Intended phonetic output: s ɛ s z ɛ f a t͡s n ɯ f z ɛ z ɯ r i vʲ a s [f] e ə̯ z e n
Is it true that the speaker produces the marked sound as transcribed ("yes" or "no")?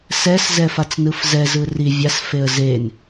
yes